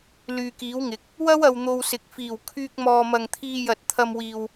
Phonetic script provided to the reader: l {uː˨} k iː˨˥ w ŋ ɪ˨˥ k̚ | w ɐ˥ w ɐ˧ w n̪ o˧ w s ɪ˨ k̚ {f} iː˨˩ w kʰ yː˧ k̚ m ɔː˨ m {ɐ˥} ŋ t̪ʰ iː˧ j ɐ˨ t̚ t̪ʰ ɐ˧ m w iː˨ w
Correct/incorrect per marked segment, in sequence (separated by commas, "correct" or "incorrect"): incorrect, correct, incorrect